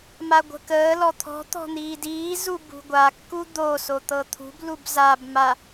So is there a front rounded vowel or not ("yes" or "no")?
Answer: no